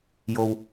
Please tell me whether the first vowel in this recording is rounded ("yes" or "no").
yes